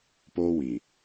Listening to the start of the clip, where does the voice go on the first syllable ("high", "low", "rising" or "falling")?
high